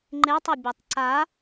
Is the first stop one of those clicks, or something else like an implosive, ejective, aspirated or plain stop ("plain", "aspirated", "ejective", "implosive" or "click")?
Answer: click